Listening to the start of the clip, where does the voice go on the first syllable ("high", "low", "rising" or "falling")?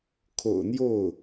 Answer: low